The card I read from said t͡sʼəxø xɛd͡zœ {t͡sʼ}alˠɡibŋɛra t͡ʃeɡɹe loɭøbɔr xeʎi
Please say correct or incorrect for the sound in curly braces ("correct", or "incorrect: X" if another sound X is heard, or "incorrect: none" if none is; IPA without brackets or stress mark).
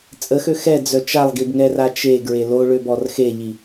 incorrect: t͡ʃ